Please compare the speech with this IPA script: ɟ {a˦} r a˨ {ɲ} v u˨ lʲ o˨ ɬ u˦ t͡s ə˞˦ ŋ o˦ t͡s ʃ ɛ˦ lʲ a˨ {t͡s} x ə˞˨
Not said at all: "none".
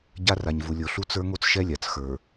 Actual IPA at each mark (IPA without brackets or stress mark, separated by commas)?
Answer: a˦, ɲ, t͡s